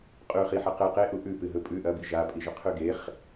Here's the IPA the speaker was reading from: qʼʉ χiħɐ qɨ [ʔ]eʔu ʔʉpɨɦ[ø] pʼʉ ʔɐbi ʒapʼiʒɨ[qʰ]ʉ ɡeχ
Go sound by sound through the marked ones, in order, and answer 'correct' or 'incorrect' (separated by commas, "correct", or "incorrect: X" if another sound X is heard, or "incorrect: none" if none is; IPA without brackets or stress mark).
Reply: incorrect: q, incorrect: ɵ, correct